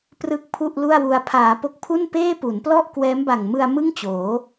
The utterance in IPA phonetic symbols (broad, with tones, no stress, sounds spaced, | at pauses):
p r ɯ˥˩ k̚ pʰ u˥˩ ʔ l u˥˩ a̯ w u˧ a̯ pʰ aː˩˦ p o˦˥ k̚ pʰ u˥˩ n p eː˥˩ p u˩˦ n p l ɔ˥˩ ʔ k w ɛː˦˥ m b a˨˩ ŋ m ɯ˧ a̯ m ɯ˥˩ ŋ t͡ɕ oː˩˦